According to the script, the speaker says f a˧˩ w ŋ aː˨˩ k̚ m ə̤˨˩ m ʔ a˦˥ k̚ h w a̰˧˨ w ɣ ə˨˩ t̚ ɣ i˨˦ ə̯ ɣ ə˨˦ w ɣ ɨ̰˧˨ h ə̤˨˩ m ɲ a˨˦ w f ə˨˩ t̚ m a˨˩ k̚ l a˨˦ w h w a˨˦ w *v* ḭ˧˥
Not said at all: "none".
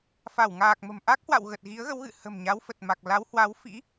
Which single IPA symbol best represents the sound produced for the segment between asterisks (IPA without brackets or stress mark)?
f